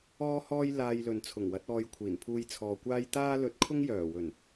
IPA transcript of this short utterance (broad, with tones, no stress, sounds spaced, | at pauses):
ɔː˥ h ɔː˥ j l aː˧ j l ɵ˨ n t͡sʰ ʊ˨˩ ŋ w ɐ˨˥ t̚ ɔː˧ j kʷʰ iː˨˩ n pʰ uː˧ j t͡sʰ ɔː˨ kʷ aː˥ j t̪ aː˥ l ɵ˧ t̚ kʰ ʊ˥ ŋ j œː˨˩ w ɵ˨˩ n